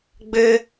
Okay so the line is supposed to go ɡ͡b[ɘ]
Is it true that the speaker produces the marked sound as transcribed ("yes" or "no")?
yes